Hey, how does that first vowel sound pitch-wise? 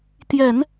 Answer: low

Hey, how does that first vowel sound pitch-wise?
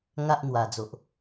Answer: high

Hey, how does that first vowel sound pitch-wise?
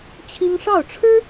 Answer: high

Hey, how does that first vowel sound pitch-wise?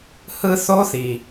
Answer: high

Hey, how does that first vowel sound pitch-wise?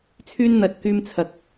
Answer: high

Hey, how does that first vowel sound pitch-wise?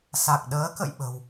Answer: low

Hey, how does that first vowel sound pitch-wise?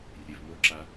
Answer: low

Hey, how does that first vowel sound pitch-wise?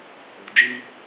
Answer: low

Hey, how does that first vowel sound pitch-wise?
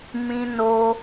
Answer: high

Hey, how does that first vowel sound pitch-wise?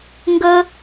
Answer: high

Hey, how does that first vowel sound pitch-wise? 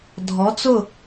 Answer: rising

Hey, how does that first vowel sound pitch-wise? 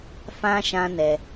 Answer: high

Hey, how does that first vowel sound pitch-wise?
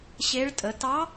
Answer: rising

